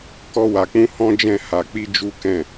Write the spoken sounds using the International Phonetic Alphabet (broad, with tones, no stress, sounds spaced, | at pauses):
k ɔ˦ w a˧ k͡p ũ˦ h ɔ̃˦ d͡ʒ ɛ̃˦˨ h a˧ k͡p i˦ d͡ʒ u˦ k ɛ̃˦˨